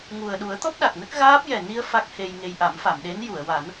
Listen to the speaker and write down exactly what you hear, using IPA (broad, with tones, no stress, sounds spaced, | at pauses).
ŋ u˨˩ ə̯ ɗ u˨˩˦ ə̯ t̪ ɔ˦˥ p̚ ɗ a˨˩ k̚ n ə˦˥ k̚ ɣ aː˦˥ p̚ j ɛ˨˩ n i˧ ə̯ f a˦˥ k̚ h e˧ j ŋ e˧ j ʔ a˨˩˦ m f a˨˩˨ m ɗ e˧˥ n j u˨˩˨ ə̯ w a˨˩˦ n